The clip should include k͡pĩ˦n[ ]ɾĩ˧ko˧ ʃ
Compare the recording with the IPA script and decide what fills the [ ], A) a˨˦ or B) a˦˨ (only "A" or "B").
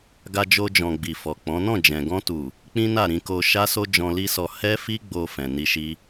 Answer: B